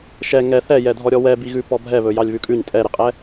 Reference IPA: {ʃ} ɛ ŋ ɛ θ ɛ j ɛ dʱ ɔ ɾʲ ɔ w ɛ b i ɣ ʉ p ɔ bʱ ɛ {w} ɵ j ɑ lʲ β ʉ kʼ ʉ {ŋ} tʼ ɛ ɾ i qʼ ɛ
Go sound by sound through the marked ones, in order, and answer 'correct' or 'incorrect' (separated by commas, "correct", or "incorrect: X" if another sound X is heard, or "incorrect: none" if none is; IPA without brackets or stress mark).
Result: correct, incorrect: β, incorrect: ɲ